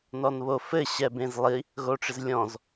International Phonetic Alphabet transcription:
n ɔ n β o f ɘ ɕ ɛ b ẽ z lˠ i | ɣ o ʈ͡ʂ ɪ z lʲ ɔ̃ z

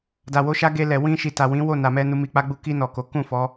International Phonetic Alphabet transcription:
d a˨ w o˧ ʃ a˦ ɡ e˧ l ɛ˨ w ĩ˧ ʃ i˨ t a˨ w ĩ˨˦ w o˦˨ n a˨ m ɛ˧ n u˧ m i˧ k͡p a˦ ɡ͡b u˦ k i˧ n ɔ˨ k o˨˦ k ũ˦˨ f ɔ˨˦

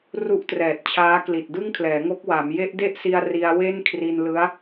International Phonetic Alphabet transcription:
r u˥˩ ʔ t r ɛː˨˩ t̚ t͡ɕʰ aː˦˥ k l i˨˩ t̚ d ɯ˥˩ ŋ kʰ l ɛː˩˦ ŋ o˦˥ k̚ w a˩˦ m j e˦˥ ʔ d e˥˩ ʔ s i˧ a̯ r i˧ a̯ w e˥˩ n kʰ r i˧ n l ɯ˦˥ a̯

